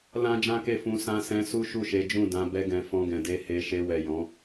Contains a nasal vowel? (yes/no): yes